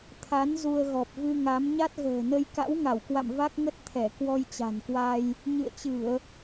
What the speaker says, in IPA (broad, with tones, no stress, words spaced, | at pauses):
t̪ʰa˨˦n zu˧ə̯ɣɔ˨˩p̚ vɨ˧ŋa˨˦m ɲa˦˥t̚ɣə̤ː˨˩nə˧j ka̰˧˥wŋa˧˩wkwa̰˧˨m va˦˥k̚ŋə˦˥t̚t̪ʰɛ˧˩ kwɔ˧jt͡ɕa̤˨˩nkwa˧j | ɲɨ̰˧˨ə̯t͡ɕɨ˧˩˨ə̯